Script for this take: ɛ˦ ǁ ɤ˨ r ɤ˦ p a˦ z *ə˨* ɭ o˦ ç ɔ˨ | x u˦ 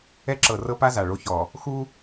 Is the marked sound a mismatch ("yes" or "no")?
yes